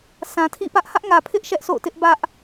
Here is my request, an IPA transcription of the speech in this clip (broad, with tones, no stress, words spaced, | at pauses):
sã˨tʰḭ˦˨ pä˦ʔ hä˦ʔŋä˨pʰɪ˦ʔ ʃɛ˦ʔso̰˦˨ʊ̯tɪ˦ʔ bä˦ʔ